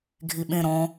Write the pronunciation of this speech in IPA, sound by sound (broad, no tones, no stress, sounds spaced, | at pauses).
ɡʱ i ɓ ẽ ɾ ɔ̃